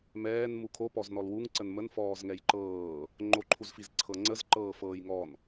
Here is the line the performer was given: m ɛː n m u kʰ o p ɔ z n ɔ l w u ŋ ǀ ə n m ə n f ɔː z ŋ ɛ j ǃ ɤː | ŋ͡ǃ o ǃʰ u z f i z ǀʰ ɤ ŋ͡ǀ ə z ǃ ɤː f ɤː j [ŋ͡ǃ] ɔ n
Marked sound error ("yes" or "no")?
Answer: yes